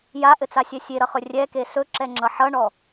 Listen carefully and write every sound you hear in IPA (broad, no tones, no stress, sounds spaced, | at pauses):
j a ʔ ɘ t͡s a sʲ ɛ sʲ e ɾ ʌ χ ɵ rʲ ɛ k e s ɵ ǁ ɛ ŋ͡ǁ ʌ ħ ʌ ɳ ɔ